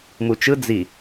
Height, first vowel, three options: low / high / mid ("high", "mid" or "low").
high